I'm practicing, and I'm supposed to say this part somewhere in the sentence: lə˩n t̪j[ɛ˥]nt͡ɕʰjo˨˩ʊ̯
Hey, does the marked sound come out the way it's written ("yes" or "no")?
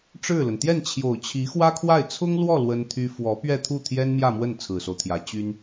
no